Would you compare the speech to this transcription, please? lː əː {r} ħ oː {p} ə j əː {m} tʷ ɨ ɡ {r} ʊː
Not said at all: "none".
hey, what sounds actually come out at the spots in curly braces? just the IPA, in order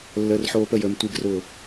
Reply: r, p, m, r

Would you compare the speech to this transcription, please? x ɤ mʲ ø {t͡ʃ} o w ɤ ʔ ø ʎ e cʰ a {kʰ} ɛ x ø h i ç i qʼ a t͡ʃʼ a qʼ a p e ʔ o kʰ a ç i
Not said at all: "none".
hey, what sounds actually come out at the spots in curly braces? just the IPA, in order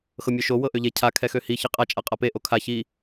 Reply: ʃ, kʰ

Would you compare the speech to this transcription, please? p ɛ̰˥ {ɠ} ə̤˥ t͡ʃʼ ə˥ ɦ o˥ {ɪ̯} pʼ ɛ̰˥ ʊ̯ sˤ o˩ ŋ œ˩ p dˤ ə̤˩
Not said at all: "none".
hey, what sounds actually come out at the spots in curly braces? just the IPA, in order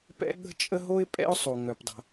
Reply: ɠ, ɪ̯

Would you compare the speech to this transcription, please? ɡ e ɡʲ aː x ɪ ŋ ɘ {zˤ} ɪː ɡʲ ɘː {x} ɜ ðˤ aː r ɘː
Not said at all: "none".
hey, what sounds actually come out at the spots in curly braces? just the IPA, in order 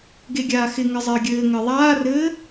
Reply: zˤ, ŋ

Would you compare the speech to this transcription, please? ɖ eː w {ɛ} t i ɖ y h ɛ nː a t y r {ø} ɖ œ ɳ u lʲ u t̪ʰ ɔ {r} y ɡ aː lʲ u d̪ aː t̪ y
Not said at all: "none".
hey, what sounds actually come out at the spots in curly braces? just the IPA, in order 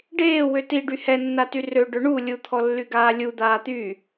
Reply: ø, ø, lː

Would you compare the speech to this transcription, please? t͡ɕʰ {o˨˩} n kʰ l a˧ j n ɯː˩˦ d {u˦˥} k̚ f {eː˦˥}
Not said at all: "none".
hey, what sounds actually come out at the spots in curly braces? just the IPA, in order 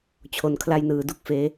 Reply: o˨˩, u˥˩, eː˦˥

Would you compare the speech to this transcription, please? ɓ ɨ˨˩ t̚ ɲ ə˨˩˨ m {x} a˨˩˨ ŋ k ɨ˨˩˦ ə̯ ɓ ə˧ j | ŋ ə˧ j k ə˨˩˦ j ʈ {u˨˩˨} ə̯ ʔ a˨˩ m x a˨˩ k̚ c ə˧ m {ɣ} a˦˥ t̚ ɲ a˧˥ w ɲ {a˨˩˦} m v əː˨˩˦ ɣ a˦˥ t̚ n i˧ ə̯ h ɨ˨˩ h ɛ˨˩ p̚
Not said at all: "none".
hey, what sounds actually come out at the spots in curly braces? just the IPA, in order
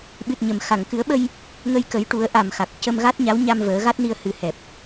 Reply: x, u˨˩˦, ɣ, a˧

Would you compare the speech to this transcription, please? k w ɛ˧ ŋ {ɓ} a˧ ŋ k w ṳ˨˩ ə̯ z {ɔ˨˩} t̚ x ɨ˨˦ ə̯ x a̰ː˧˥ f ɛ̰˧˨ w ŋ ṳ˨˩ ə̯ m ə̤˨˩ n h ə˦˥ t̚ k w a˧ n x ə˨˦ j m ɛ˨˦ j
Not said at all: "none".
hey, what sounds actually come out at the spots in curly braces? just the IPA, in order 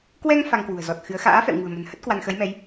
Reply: f, ɔ˨˩

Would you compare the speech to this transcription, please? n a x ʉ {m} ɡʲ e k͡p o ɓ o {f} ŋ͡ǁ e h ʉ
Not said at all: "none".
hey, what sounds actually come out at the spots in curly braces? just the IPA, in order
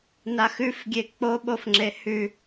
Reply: f, f

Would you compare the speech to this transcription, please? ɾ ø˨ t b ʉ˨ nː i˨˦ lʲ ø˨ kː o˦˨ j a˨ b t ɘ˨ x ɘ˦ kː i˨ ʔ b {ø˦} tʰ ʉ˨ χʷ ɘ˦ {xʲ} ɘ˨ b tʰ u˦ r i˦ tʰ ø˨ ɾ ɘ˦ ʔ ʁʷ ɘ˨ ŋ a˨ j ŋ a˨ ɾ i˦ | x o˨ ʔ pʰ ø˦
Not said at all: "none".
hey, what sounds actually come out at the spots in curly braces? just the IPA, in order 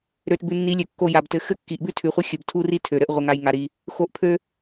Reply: ʉ˦, xʲ

